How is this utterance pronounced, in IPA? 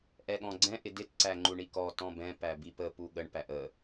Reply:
ʔ ɛ ɠ ɔ̃ ɡ͡ǀ ɛ̃ ʔ ɪ d ɪ t ǀ æ ŋ͡ǃ u ɳ i k ɔ t ɔ̃ b ɛ̃ p æ b i p ə p u ɠ ə ɳ p æ ʔ ə

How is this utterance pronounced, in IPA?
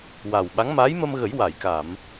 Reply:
w a˨˩ w ɓ a˧˥ ŋ m aː˧˥ j m ə˧ m ɣ ə˨˩˦ j w a˨˩˨ j k a˨˩˨ m

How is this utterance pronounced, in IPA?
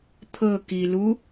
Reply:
t̪ʰ ɤ k i l u

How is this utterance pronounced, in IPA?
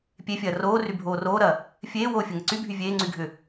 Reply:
pʲ e fʲ ɐː r oː r y bʱ oː r oː ɾ ɐː | fʲ eː w oː fʲ ɐ ŋ ɐ ǀ y bʱ y vʲ eː ŋ͡ǀ y ɡʱ ʏ

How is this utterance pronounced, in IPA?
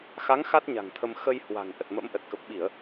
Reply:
x a˨˦ ŋ x a˦˥ t̚ ɲ a̤˨˩ ŋ t̪ʰ ə˧ m x ə˧ j h w a̤˨˩ ŋ ʔ ə˨˩ t̚ m ə̰˧˥ m ʔ ə˨˩ t̚ k ə˨˩ p̚ ɓ i˧˩˨ ə̯

